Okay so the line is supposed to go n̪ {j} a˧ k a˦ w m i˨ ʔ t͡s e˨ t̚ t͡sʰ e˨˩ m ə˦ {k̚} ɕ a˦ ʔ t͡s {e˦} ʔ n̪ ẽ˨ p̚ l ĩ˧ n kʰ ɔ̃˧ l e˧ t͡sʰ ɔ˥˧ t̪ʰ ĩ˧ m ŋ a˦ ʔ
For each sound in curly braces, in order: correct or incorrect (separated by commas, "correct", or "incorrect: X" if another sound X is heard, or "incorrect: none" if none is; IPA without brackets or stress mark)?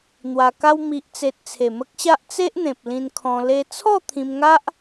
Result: incorrect: w, correct, correct